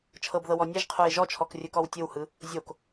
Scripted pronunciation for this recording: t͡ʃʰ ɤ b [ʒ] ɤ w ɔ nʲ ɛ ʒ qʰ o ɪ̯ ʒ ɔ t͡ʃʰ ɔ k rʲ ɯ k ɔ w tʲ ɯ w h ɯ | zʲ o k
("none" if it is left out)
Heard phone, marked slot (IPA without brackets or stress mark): ð